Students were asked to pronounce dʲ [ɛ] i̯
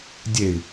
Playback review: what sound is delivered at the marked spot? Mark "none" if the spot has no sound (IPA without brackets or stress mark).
e